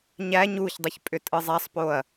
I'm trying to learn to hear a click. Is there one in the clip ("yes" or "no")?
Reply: no